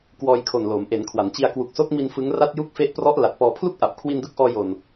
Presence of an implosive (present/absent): absent